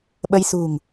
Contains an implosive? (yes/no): yes